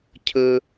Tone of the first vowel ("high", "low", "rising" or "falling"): high